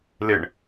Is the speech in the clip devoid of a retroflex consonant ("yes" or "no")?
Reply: no